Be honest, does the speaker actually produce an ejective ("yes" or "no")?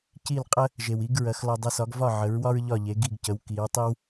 yes